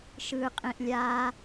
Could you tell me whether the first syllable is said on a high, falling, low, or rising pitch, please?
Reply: low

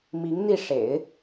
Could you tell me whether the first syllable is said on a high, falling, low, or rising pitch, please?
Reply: rising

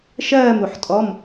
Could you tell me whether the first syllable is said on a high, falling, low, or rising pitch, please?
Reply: falling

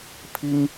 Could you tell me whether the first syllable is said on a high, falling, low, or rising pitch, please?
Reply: high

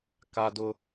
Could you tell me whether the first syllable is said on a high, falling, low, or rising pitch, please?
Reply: high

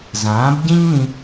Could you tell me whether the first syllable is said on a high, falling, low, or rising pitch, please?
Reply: rising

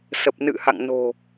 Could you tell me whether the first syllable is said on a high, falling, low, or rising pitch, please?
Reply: low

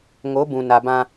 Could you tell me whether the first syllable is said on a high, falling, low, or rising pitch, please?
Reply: rising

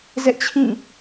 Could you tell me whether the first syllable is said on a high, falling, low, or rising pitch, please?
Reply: high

